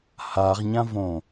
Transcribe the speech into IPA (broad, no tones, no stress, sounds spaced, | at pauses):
h a ʁ ɲ ã v õ